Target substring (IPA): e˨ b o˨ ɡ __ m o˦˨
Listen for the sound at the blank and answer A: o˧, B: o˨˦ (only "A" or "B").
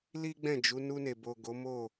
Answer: B